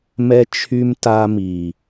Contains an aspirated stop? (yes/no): yes